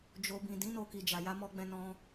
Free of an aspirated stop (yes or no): yes